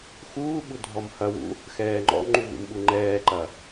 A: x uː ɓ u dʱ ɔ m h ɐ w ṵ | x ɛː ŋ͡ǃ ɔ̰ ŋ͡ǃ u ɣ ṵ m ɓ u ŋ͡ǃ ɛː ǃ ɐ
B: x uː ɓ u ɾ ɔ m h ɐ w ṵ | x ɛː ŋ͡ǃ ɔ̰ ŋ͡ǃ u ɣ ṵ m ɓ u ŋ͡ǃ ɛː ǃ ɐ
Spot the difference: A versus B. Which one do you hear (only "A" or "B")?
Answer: A